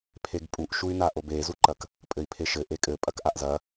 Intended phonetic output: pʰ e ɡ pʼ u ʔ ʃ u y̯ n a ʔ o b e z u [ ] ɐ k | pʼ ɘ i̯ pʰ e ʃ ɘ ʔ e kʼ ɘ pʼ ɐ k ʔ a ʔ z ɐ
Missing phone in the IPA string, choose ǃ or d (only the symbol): ǃ